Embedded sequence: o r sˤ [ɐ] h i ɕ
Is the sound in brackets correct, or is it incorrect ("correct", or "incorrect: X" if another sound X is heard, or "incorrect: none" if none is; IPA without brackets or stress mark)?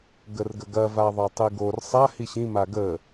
incorrect: a